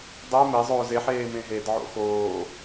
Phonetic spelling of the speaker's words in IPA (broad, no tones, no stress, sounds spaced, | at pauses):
dˤ ə˞ m ɘ ɪ̯ zˤ oː z e ħ eː m ẽ ɦ e d ʕ o̰ x oː